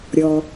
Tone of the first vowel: low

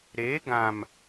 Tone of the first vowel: rising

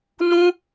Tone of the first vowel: high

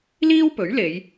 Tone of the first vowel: high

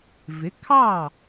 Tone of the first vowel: rising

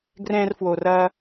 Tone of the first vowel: high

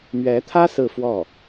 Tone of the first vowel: rising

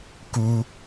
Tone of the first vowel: high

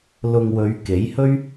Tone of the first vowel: low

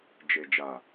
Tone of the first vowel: low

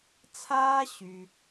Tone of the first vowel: high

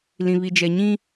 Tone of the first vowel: low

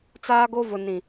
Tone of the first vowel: high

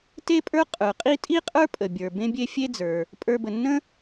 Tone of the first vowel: high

